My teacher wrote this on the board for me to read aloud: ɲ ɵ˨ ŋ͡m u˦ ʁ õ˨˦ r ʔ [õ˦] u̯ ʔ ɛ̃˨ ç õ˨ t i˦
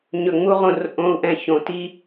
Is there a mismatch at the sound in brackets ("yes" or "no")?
yes